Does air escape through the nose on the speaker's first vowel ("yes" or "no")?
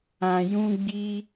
yes